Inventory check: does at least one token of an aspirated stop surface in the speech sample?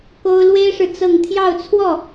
yes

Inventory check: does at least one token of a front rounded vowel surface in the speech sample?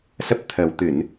no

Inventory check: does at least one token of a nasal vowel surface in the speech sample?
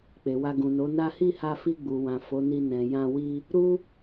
yes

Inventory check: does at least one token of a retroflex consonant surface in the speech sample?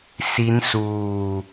no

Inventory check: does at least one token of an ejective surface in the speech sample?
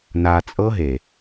yes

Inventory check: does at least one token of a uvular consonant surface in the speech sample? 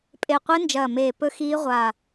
yes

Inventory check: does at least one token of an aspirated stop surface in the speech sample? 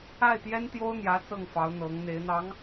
no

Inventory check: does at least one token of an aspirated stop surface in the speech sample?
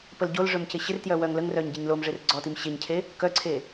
yes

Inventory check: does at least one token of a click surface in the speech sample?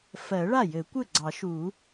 yes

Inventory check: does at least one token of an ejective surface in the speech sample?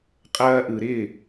yes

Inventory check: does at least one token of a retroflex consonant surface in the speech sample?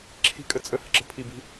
no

